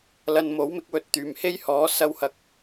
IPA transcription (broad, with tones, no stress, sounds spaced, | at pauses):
l ɐ˨ n m o˨˥ w m ɪ˨˥ k̚ w ɵ˨˥ t̚ t̪ yː˨˩ m h e˥ j h ɔː˨˥ s ɐ˥ w h ɐ˧ k̚